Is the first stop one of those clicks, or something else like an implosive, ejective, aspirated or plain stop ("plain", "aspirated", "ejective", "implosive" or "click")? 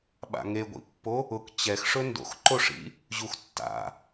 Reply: implosive